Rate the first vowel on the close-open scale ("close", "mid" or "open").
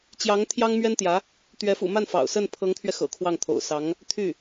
open